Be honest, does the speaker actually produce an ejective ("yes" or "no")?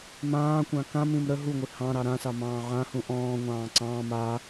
no